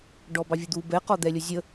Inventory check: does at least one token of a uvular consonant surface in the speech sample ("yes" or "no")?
yes